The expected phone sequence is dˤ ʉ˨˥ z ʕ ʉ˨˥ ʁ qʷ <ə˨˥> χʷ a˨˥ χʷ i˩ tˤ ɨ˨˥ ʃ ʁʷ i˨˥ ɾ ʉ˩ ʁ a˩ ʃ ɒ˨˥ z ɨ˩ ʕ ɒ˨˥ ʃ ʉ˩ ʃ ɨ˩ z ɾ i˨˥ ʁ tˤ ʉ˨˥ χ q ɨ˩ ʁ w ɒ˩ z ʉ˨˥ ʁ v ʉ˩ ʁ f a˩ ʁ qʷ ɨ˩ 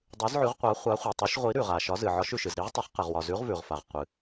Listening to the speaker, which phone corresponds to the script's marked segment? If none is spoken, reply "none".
a˨˥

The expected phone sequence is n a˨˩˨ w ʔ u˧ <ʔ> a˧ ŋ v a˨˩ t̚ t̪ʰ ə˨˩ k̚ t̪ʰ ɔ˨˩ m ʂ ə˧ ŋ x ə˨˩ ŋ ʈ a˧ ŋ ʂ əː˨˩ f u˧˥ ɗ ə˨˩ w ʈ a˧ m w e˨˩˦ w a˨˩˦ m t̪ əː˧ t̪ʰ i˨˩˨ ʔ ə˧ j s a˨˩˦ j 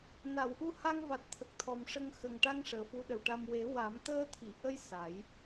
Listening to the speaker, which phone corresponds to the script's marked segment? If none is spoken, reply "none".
h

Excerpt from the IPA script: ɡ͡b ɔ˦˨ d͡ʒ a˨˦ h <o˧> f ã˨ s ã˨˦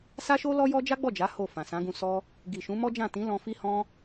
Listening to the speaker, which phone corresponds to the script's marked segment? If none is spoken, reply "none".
o˦˨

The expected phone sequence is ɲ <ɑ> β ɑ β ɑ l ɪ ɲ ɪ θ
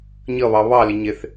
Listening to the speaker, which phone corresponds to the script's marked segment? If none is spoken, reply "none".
ʌ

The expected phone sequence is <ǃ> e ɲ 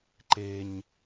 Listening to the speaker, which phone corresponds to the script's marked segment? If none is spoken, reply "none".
ǃ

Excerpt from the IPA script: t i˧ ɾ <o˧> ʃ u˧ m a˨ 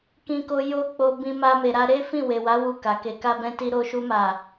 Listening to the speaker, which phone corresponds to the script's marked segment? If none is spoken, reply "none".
o˧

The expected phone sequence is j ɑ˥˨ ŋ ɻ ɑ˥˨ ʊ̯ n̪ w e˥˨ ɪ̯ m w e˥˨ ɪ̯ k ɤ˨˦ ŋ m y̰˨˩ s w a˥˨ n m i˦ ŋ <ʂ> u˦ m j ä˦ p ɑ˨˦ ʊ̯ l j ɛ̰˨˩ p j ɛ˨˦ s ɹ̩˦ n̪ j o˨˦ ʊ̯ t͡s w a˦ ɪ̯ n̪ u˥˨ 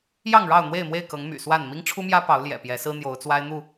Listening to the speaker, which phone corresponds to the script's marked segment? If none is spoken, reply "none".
ʈ͡ʂʰ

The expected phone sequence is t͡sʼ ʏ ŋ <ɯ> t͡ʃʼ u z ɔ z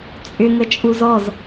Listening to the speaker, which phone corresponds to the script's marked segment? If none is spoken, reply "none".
ə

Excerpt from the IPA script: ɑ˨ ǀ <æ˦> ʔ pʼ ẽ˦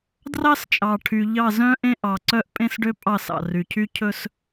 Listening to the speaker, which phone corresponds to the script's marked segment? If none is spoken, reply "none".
œ˦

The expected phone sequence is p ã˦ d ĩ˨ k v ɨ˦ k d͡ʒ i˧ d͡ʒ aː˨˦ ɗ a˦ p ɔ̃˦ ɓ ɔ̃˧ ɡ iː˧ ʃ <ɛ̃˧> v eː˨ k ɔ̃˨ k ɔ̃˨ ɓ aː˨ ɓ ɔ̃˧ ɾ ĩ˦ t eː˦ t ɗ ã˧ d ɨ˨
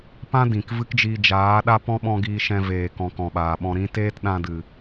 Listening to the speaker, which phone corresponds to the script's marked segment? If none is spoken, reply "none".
ɛ̃˧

